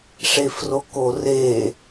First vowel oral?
yes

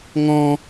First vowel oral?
no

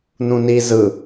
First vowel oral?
no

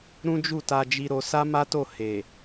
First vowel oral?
no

